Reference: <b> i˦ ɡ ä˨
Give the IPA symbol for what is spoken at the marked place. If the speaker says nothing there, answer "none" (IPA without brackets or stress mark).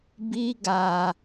b